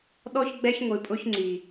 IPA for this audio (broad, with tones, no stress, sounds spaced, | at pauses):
ɗ ɔ˦ ç ɡ͡b ɛ˦ ç ŋʷ i˨ pʼ ʊ˦ ç ŋ͡ǀ i˨